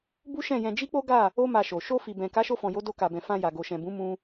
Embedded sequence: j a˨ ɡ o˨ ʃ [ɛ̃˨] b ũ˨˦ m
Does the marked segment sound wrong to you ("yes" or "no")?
no